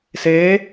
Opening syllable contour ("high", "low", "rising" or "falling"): rising